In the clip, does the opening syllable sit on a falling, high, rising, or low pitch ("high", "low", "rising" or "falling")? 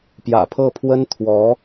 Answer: low